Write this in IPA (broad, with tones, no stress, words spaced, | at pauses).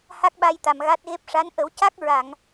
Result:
ha˦˥k̚ɓa˧jt̪a˨˩m ɣa˦˥t̚ɣe˦˥p̚ ʂa˧˥n ʔə˨˩˦wca˦˥k̚ ɹa˨˩˨ŋ